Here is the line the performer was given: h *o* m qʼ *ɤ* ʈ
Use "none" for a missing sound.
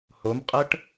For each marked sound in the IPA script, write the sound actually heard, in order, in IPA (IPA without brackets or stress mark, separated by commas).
o, ɤ